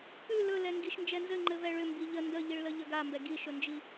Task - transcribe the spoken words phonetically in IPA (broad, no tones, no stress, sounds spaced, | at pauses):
p ʉ l ɵ l ɛ ŋ ɡ i ʃ n d͡ʒ ɛ n z ɘ ŋ͡ǃ ɘ v ɛ ɭ ʏ m b i ʎ ə n d ə ʎ i ɭ l ə ʎ ə ɡ a m b ɛ ɡ i ʃ ɵ n d͡ʒ i